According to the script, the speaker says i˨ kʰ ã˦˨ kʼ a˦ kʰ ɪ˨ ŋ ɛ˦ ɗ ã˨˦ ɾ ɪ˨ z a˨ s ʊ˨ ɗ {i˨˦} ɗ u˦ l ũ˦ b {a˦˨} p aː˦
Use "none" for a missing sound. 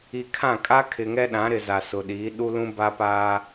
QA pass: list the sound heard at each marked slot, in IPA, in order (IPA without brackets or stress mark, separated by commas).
i˨˦, a˦